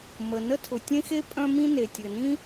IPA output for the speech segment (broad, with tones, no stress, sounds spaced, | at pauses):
m ə˩ n ə˥ tʰ ʊ˩ tʲ ẽ˥ x e˥ pʼ œ̃˥ m ĩ˥ n e˩ tʲ ɘ˩ n ĩ˥